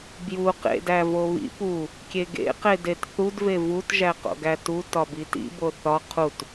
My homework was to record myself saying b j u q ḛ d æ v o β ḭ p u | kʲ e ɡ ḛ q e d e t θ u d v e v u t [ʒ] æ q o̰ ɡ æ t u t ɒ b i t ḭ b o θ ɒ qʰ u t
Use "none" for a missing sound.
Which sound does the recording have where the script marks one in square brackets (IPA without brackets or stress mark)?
ʒ